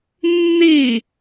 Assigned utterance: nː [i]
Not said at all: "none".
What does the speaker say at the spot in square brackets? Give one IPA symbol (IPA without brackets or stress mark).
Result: i